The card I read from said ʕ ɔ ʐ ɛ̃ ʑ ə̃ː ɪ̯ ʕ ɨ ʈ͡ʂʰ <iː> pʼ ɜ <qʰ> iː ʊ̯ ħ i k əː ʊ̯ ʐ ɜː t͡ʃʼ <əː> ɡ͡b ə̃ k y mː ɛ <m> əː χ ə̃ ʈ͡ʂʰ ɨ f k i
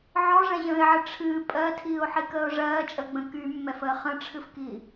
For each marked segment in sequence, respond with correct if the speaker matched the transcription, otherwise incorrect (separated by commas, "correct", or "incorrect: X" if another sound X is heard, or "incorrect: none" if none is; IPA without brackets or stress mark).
incorrect: ɨː, incorrect: tʰ, correct, incorrect: f